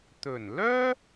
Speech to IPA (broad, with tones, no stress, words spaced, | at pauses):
t̪ɵ˨˩nlœː˥